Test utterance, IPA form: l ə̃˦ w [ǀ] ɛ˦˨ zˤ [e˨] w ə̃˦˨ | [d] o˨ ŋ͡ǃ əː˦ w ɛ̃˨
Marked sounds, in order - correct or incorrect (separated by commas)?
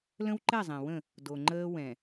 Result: incorrect, incorrect, correct